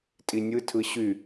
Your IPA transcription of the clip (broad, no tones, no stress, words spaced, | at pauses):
tʼinʲɯtʰɯ ɕy